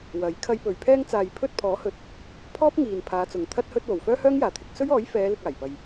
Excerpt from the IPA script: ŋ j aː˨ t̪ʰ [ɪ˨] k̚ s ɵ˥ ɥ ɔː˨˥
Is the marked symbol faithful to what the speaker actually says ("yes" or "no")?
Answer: no